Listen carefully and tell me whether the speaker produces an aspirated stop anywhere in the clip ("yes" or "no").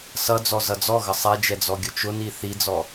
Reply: no